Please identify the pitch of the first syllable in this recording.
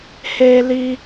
high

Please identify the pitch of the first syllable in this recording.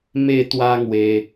falling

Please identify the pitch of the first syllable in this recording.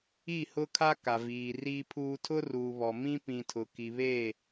falling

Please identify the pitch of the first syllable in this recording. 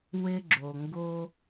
low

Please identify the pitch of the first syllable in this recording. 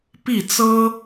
falling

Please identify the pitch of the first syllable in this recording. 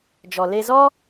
low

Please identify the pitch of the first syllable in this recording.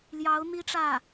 rising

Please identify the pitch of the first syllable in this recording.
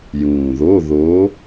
low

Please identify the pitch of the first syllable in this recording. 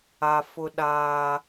high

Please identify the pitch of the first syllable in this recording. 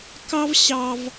high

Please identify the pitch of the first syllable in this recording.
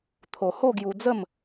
low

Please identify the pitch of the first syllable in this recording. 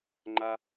high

